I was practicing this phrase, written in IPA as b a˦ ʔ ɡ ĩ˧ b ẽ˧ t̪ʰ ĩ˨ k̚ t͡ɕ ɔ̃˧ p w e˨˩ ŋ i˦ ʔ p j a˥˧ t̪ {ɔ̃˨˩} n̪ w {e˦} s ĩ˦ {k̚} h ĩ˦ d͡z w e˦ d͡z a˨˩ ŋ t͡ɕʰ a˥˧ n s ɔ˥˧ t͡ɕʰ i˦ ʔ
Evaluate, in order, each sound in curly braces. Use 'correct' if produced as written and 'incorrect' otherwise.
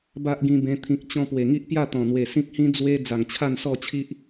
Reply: correct, incorrect, correct

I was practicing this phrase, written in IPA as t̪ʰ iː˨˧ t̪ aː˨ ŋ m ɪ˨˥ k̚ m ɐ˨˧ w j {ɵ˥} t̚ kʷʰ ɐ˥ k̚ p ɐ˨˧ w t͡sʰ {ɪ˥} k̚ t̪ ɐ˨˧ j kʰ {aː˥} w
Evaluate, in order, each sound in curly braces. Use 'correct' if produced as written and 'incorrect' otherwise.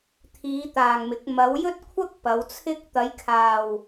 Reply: correct, correct, incorrect

